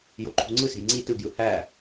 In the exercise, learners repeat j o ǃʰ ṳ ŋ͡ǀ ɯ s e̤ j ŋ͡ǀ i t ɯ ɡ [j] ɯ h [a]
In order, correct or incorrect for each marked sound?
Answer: correct, incorrect: æ

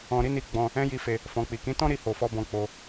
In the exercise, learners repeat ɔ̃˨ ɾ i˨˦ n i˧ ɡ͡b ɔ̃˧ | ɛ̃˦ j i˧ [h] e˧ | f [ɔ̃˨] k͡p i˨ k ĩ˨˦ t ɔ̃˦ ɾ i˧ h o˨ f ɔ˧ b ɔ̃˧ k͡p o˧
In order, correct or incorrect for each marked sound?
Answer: incorrect: f, correct

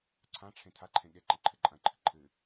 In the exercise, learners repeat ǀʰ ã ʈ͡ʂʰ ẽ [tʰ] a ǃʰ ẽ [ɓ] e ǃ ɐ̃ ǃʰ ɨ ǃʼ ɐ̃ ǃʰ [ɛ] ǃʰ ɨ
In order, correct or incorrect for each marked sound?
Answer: correct, incorrect: ɠ, incorrect: ɨ

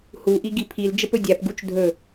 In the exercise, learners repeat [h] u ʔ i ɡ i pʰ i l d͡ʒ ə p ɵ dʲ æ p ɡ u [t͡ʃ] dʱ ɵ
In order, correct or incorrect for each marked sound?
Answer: correct, correct

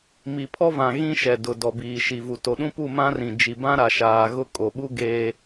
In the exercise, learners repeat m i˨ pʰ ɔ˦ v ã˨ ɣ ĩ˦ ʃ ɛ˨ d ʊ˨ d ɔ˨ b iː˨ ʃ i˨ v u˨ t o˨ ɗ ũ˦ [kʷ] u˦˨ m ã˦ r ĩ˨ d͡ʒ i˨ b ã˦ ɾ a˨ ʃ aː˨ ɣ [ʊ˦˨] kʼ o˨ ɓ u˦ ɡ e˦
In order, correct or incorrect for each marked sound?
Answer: incorrect: p, correct

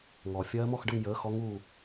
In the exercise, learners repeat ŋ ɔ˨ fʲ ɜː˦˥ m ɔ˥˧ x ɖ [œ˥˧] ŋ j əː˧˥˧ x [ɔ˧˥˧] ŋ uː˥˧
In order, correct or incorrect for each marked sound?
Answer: incorrect: ə˥˧, incorrect: ɔ˦˥

